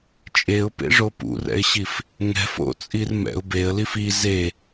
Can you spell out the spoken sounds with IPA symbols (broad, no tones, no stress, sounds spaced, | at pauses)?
t͡ʃʼ e ʊ̯ p ḛ ʐ o p ṵ r ɛ̰ ɪ̯ ɕ i f | ŋ ɛ̤ f o̰ t͡sʼ i r m ɛ̰ ʊ̯ b e ə̯ l i f i z e